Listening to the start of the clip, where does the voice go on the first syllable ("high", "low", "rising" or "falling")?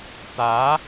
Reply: rising